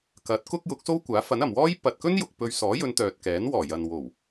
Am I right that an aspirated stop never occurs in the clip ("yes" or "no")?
yes